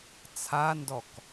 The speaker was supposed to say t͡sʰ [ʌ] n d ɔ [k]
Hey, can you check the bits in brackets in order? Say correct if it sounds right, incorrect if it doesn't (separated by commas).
incorrect, correct